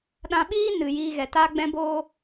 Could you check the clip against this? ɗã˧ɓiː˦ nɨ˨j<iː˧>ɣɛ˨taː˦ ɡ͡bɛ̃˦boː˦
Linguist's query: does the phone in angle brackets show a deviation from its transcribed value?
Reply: no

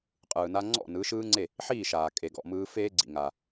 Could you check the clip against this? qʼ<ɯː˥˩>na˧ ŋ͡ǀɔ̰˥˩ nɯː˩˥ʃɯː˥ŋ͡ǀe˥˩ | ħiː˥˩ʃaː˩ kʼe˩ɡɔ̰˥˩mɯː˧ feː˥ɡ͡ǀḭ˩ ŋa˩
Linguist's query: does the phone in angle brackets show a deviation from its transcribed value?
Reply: yes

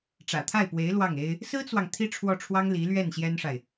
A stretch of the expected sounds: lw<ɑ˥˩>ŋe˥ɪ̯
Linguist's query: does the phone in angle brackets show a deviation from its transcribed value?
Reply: no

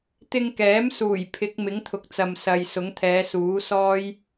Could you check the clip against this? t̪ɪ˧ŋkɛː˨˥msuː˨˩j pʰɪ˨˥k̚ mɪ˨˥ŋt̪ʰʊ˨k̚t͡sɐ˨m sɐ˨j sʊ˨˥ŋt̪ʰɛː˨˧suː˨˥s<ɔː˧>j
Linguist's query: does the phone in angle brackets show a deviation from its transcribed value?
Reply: yes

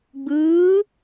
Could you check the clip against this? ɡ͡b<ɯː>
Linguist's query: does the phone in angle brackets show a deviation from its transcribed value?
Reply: no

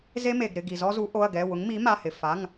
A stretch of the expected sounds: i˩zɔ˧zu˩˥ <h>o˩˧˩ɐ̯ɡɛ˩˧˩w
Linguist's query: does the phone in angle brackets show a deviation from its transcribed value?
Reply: yes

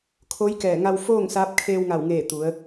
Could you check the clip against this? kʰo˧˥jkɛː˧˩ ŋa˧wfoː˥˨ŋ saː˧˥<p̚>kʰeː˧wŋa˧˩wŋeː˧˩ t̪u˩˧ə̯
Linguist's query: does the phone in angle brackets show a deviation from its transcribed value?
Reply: no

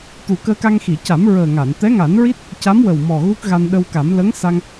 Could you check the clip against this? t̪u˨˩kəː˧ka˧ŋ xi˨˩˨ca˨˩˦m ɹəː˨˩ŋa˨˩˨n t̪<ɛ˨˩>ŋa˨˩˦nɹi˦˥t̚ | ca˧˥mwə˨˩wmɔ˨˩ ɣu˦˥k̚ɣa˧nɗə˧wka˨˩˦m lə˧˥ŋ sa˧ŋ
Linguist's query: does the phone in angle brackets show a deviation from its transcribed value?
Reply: yes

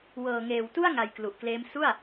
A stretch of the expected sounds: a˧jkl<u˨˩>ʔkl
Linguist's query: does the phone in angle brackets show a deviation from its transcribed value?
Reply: no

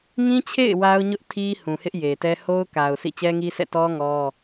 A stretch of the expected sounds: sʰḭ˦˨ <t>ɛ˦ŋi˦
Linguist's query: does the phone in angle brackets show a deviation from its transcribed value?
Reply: yes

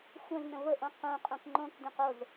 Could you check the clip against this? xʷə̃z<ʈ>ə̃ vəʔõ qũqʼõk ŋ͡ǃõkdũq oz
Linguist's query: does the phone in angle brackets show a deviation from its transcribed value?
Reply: yes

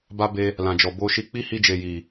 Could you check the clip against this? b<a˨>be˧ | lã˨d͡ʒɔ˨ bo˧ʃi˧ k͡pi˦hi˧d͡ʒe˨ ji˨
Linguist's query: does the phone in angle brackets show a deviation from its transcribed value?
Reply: yes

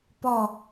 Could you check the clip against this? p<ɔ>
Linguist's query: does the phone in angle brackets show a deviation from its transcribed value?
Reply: no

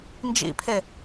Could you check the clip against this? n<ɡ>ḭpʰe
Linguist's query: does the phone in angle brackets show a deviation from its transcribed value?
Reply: yes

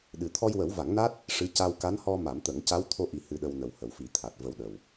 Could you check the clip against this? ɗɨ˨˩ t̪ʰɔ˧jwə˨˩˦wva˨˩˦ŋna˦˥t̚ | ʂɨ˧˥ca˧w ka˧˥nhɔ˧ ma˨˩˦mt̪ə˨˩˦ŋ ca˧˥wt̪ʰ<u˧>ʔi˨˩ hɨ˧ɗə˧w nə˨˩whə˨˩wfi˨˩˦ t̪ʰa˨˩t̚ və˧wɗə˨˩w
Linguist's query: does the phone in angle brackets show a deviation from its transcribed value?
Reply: yes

